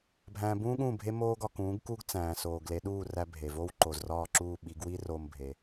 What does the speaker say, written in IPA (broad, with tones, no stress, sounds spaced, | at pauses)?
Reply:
bʱ æ̃ː˧ b ũː˥ ɠ ũː˥˩ bʱ e˥ m oː˥ ɡ ɒ˧ k ũː˩˥ ɡ k u˥ ɡ t͡s æ̃ː˩ s oː˩ ɡ l e˩˥ ɗ uː˥˩ r æ˧ bʱ e˩ v o˥ w ǃ o˩ z r ɒː˥˩ ǁ uː˥˩ ɓ i˩˥ ɡ w i˥ r oː˧ m bʱ e˩